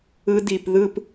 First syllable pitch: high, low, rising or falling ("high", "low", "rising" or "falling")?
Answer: high